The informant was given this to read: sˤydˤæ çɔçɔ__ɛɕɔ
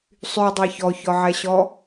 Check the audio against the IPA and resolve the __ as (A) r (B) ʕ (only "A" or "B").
B